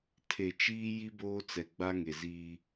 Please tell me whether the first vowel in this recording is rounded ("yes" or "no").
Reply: no